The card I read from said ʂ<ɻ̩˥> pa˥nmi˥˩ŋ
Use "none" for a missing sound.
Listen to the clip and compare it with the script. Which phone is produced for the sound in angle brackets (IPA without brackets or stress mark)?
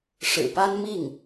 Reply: ɻ̩˨˩